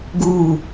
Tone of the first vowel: falling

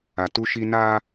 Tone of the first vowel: low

